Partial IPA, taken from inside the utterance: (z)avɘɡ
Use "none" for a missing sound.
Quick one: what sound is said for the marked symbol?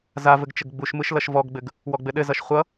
z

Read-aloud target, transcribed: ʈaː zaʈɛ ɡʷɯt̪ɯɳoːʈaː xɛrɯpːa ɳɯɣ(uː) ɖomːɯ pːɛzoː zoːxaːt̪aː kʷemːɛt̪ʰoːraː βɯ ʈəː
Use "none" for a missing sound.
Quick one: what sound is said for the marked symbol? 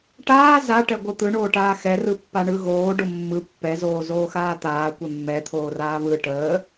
oː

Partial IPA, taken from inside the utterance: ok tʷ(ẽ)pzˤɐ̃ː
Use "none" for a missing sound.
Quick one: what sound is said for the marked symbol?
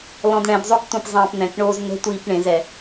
ɛ̃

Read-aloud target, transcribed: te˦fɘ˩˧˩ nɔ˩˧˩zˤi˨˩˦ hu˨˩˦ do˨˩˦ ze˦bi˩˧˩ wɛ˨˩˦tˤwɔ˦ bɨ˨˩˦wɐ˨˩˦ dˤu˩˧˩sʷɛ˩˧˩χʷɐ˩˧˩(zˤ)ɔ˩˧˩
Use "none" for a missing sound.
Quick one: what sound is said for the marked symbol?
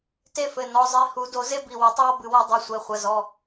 z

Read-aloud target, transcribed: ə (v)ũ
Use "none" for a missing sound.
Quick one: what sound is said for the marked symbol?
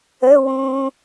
w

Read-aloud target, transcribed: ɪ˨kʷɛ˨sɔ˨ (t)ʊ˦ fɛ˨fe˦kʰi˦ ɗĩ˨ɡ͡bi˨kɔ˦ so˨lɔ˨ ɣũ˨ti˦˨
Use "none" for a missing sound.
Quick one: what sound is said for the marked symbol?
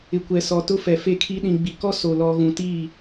t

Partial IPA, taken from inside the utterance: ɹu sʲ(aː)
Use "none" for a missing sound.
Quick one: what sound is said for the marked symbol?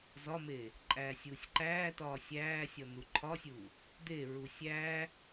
æː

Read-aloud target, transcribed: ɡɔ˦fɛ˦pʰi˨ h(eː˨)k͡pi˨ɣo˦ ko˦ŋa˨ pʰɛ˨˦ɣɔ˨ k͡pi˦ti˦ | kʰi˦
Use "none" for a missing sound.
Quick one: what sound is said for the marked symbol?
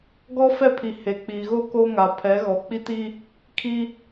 e˨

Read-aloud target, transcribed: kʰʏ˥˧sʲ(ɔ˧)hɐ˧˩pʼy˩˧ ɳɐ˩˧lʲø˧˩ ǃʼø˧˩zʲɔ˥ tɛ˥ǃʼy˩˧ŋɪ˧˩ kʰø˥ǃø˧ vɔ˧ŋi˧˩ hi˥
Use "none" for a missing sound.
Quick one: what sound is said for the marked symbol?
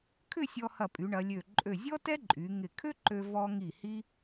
ɔ˧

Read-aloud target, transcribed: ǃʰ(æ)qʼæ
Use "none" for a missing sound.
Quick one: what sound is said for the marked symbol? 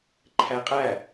æ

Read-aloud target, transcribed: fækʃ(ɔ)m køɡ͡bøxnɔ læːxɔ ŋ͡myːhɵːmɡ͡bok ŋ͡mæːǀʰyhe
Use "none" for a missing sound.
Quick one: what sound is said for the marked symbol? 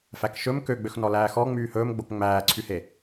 ɵ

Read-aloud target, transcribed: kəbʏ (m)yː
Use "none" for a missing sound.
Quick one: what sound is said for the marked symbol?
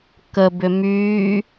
m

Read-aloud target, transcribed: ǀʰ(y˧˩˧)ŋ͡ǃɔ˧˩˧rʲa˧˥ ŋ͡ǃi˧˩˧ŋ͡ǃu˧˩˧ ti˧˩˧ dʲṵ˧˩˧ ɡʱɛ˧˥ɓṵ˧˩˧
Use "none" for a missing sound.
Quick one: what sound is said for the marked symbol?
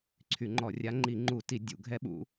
y˧˩˧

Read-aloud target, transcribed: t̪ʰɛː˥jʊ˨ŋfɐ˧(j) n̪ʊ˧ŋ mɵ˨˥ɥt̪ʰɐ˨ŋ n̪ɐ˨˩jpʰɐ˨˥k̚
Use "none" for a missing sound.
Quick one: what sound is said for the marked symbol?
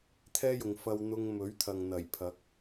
w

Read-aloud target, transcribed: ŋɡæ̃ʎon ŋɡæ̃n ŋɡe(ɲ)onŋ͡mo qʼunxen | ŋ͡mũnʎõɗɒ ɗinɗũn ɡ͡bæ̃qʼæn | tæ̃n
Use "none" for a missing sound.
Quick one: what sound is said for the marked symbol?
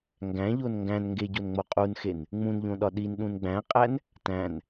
ɟ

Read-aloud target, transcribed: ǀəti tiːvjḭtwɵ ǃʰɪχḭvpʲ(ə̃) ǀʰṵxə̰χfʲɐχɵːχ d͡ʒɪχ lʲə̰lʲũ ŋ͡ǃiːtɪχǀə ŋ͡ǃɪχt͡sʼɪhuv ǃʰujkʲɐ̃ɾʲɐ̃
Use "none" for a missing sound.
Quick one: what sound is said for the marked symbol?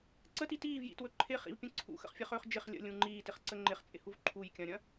ə̃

